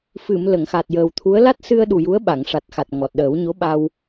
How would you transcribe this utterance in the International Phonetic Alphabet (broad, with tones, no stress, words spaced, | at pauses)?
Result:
fɨ˨˩˨m lə˨˩˨ŋxa˨˩t̚jəː˨˩wt̪ʰu˧˥ə̯ la˦˥t̚sɨ˧ə̯ɗu˨˩ ju˧˥ə̯ɓa˨˩˨ŋʂa˨˩t̚xa˨˩t̚ ŋɔ˨˩t̚ɗəː˨˩˦wɲo˧˥ ɓa˧w